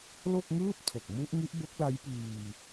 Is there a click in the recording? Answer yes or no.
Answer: no